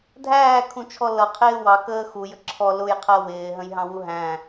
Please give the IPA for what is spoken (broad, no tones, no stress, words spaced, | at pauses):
dʱæːkʰũt͡ʃʰɔ lʌqʰɪː wɑkəː xujə ǁʰɔ lʊjqʰɜ wɪːɦə̃jɦɑ̃wu ɦæ̃